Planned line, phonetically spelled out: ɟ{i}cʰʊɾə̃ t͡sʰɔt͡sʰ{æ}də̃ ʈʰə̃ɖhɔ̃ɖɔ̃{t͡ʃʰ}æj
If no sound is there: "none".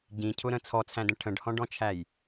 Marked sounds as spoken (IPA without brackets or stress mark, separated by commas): ĩ, æ̃, t͡ʃʰ